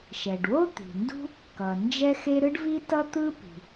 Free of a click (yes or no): yes